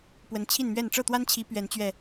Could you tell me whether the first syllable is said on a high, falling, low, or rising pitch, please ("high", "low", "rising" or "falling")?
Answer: rising